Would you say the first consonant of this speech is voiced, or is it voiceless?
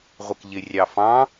voiced